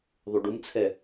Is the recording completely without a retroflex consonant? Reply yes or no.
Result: no